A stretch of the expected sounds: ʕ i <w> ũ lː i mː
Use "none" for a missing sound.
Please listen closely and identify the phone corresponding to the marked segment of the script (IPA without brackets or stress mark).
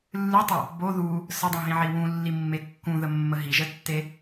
w